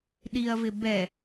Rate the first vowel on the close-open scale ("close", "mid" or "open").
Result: close